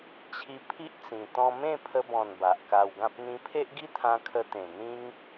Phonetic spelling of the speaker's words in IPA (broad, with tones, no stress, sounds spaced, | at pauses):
t͡ɕʰ i˧ pʰ i˦ ʔ t͡s ĩ˧ t̪ ɔ̃˧ m ẽ˥˧ pʰ ə˧ b ɔ̃˨˩ n b a˨ ʔ k a˧ w ɡ ã˦ p̚ n̪ ĩ˧ pʰ e˦ ʔ ɡ i˦ t̪ʰ ã˧ kʰ ə˧ t̪ ẽ˨˩ n̪ ĩ˦ ŋ